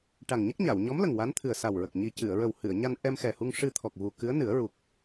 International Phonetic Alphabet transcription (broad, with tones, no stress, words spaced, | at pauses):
ʈa˨˩ŋɲə˦˥k̚ɲa˨˩˨w ɲɔ˧˥mlə˨˩ŋ wa˧˥nt̪ʰɨ˨˩ə̯sa˨˩wɹə˨˩k̚ ɲi˨˩cɨ˨˩˨ə̯ɹə˨˩w hɨ˨˩˨ə̯ɲa˧n ʔɛ˧mxɛ˨˩hu˧ŋ ʂɨ˧t̪ʰɔ˨˩k̚ vu˨˩kɨ˧˥ə̯nɨ˨˩˦ə̯ ɹu˨˩k̚